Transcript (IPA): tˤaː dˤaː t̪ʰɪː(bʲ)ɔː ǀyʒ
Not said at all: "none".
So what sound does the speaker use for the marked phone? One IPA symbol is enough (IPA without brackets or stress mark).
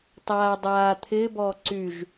b